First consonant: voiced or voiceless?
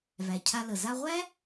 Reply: voiced